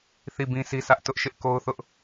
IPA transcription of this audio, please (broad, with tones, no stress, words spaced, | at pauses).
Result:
θi˦˨bĩ˦si˦sä˦ʔ tʊ˦ʔʃɪ˦ʔko˦ʊ̯θʊ˦ʔ